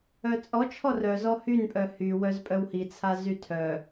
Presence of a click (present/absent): absent